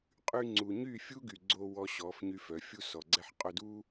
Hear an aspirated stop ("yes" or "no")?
no